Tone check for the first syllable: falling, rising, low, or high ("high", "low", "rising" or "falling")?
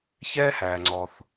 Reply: high